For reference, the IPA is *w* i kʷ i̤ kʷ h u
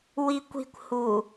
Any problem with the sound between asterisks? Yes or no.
no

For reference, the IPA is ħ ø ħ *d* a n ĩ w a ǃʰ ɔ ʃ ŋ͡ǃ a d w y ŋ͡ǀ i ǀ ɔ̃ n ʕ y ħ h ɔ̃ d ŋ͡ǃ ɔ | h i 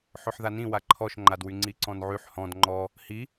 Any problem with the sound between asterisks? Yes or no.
yes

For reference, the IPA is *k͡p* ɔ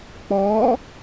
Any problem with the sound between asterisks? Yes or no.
no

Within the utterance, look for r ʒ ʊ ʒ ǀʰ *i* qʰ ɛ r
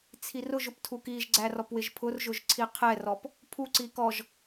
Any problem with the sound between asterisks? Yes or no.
no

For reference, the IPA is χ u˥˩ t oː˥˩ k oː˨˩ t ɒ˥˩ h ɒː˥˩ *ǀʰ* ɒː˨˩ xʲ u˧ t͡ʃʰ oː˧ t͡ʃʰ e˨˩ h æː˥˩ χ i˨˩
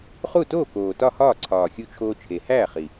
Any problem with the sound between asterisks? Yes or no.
no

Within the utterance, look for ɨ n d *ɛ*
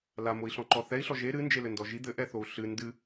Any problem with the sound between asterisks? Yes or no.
yes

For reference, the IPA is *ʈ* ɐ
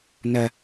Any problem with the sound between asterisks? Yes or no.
yes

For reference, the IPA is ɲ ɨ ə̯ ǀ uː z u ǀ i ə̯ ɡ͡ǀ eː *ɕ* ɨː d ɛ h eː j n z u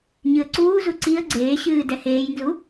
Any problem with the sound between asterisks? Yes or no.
no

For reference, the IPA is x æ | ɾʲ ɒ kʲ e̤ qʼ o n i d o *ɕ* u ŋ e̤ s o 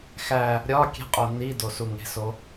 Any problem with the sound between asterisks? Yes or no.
yes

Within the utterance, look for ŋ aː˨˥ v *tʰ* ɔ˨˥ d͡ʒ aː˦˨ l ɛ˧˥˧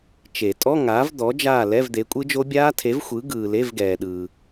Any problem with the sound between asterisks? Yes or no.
yes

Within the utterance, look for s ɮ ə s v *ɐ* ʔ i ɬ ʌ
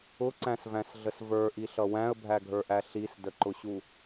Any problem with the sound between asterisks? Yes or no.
yes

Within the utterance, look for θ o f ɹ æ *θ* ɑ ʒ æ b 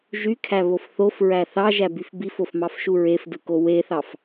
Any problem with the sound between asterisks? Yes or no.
no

